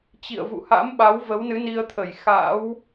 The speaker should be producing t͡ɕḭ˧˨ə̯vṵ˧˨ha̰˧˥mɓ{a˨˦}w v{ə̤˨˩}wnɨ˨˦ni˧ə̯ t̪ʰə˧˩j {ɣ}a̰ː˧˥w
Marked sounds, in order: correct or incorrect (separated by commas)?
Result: correct, incorrect, incorrect